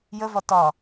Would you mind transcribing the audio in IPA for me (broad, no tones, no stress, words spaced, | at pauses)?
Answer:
jəvɒ tɒ